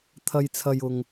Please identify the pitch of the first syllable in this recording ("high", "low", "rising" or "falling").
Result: low